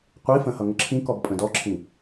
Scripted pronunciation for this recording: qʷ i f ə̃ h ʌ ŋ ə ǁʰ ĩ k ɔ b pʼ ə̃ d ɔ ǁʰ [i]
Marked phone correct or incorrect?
incorrect